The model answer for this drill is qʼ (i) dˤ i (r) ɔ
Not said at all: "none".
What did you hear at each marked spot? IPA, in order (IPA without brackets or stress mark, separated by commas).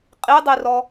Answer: i, r